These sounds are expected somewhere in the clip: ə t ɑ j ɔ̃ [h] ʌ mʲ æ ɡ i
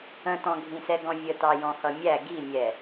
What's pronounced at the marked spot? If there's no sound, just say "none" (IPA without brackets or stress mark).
h